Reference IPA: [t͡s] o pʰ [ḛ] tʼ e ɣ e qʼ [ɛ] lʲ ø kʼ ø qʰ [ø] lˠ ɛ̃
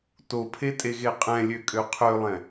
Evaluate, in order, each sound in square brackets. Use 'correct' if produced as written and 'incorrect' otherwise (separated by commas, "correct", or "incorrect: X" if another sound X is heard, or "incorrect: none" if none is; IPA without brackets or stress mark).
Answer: incorrect: t, incorrect: e, incorrect: ɛ̃, correct